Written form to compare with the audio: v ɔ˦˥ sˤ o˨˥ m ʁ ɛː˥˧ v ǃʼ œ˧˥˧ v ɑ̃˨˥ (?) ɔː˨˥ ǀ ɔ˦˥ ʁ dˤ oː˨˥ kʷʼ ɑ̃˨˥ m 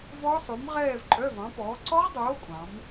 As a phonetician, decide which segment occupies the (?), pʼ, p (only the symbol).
p